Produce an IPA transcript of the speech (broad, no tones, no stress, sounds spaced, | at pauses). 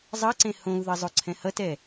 zˤ ʌ ǀ ẽ h õ u̯ ð ʌ zˤ o ǀʰ ɛ̃ h ʌ t ɛ